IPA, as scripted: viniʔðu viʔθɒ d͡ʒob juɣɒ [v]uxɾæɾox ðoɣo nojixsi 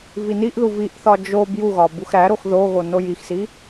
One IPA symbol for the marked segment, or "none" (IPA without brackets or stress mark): b